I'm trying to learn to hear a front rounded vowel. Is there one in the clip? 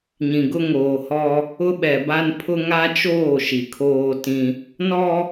no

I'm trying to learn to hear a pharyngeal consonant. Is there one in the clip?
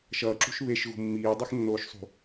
no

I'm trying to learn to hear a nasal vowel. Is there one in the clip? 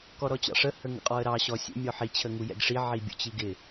no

